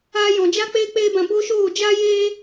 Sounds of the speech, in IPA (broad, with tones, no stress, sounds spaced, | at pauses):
a˧ j ɔ̃˨ d͡ʒ a˦ k͡p eː˦ k͡p eː˦ b ã˧ b o˦ ʃ oː˦˨ d͡ʒ a˦ j eː˦